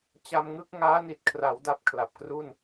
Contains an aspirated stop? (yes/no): yes